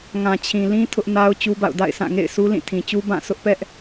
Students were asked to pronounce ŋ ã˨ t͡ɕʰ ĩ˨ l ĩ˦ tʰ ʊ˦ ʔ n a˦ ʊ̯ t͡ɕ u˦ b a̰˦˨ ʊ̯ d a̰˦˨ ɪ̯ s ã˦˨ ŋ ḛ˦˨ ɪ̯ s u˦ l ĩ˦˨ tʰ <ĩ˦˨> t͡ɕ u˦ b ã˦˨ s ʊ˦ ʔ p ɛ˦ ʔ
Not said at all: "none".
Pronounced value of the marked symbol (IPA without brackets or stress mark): ĩ˨